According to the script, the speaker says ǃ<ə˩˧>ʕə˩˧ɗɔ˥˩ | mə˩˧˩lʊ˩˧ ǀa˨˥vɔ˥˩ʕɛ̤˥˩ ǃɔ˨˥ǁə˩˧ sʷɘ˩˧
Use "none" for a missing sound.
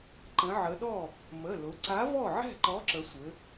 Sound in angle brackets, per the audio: ə̃˩˧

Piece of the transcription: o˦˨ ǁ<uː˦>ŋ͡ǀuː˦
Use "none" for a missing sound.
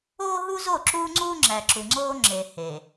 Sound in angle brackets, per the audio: uː˦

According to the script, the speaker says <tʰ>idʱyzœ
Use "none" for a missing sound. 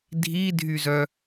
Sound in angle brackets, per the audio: dʱ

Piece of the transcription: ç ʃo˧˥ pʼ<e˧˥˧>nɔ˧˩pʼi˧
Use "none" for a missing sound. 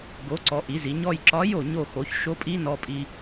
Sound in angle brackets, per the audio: i˧˥˧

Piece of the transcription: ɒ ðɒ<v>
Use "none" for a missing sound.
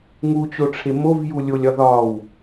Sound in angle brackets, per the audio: w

